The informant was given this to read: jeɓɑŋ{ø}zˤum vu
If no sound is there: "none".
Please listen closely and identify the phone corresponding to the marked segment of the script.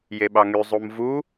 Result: y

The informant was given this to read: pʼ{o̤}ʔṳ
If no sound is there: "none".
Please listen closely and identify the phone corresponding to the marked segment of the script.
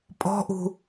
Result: ɔ̤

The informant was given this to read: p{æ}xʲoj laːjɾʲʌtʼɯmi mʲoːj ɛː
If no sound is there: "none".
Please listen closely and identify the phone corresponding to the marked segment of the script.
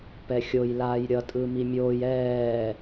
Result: ɛ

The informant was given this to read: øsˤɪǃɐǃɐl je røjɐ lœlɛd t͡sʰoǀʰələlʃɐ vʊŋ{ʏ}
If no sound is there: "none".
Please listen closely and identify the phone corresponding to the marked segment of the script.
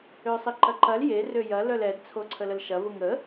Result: ə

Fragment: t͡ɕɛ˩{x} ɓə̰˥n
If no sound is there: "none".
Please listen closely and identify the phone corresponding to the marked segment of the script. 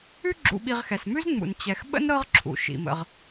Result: x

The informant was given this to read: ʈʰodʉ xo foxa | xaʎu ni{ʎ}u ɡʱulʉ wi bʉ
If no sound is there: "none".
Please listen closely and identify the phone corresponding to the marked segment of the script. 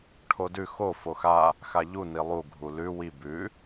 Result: lˠ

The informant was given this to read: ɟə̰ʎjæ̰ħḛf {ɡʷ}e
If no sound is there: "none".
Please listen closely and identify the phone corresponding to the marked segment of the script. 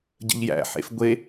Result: ɡʷ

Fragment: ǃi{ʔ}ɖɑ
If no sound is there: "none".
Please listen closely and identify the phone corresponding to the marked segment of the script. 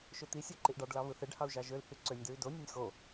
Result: ʔ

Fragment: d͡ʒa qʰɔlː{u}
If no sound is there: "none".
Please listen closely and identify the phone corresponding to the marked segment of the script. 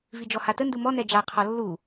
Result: u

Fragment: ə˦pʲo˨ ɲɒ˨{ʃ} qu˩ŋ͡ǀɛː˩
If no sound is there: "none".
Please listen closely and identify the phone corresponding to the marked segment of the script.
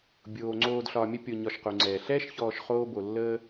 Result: ʃ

